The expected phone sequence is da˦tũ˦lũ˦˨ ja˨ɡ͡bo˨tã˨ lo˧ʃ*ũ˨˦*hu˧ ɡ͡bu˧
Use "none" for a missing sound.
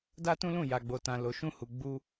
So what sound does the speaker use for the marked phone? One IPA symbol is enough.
ũ˦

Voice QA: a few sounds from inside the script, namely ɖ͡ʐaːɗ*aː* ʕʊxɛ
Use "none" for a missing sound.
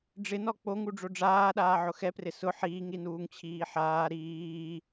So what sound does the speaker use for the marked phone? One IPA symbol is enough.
aː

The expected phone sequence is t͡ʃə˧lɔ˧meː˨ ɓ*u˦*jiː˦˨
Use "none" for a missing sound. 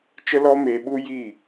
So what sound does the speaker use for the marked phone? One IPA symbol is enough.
u˦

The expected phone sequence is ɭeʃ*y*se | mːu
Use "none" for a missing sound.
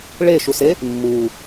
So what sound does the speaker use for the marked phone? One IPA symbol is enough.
u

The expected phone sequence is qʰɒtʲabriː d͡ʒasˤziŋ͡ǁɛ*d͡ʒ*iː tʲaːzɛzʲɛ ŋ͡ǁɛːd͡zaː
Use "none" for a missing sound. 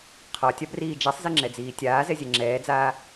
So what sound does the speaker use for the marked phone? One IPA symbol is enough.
d͡z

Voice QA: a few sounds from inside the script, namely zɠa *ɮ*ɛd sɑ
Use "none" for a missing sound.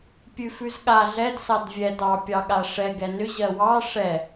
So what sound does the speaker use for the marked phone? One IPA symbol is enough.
ɮ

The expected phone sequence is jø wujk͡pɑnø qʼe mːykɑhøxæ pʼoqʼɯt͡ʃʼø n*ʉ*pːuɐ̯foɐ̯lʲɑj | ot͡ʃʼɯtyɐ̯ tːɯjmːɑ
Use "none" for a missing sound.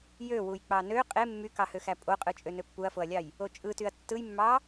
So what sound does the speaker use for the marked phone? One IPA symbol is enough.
ø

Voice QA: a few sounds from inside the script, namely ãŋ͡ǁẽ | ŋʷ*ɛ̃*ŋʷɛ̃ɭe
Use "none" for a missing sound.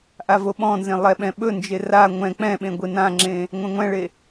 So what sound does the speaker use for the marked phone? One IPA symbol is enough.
ɛ̃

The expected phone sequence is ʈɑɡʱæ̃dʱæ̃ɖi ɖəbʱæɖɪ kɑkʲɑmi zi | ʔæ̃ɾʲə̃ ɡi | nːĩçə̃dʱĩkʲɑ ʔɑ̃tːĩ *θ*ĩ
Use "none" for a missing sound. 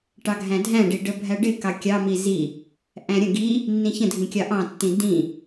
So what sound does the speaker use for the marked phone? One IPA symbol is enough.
d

